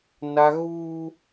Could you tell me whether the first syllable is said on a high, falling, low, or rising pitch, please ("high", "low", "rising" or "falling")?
high